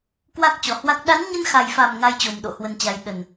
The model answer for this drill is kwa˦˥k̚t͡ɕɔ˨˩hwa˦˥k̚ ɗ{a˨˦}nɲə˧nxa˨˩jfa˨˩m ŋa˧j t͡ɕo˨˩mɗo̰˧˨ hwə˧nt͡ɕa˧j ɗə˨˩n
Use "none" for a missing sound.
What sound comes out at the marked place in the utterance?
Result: a˨˦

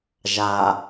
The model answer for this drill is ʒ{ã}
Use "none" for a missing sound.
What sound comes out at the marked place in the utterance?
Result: a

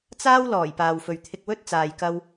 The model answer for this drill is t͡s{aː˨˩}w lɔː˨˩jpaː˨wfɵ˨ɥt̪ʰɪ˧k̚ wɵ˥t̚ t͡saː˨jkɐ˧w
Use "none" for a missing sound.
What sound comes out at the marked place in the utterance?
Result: aː˥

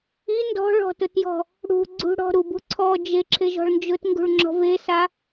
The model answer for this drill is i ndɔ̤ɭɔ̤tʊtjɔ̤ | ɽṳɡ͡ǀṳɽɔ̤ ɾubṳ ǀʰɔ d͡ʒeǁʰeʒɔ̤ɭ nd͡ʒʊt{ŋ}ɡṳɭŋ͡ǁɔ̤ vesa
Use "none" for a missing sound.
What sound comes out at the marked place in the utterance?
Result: ŋ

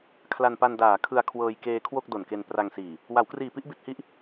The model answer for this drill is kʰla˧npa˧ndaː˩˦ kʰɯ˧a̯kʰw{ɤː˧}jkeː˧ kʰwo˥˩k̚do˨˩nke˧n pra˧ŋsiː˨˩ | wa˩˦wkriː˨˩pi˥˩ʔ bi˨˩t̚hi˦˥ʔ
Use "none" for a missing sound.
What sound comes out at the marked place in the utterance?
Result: ɤː˧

